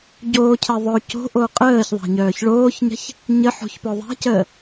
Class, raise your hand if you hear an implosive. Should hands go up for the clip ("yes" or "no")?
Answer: no